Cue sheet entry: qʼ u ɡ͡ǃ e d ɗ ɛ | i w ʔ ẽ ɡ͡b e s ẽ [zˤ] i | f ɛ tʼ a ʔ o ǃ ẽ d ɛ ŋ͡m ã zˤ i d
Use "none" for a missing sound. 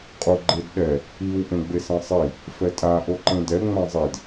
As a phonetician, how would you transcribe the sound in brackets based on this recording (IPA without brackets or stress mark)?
sˤ